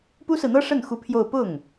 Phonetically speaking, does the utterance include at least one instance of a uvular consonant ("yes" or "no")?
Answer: no